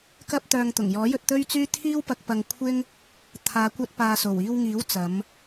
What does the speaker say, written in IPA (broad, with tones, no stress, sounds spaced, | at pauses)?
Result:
k ɐ˥ p̚ t̪ œː˧ ŋ t̪ ʊ˨˩ ŋ j ɔː˨˥ j ɵ˧ t̚ t̪ ɵ˥ ɥ t͡s yː˥ t̪ʰ iː˥ w p ɐ˧ k̚ p ɐ˧ ŋ kʷʰ ɪ˥ ŋ | t̪ʰ aː˨˧ kʷ ɐ˧ t̚ p aː˨ s o˨˩ w iː˧ w ŋ iː˨˥ w t͡s ɐ˨˧ m